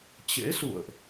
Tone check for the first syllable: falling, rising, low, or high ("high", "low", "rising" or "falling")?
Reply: rising